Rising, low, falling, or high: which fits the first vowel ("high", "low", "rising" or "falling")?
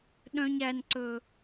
high